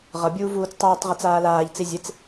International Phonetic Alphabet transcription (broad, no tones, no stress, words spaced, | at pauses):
ʁʌbʲuː vuːt͡stˤɯːtˤʁet͡s aːlaːʎt͡si zʲet͡s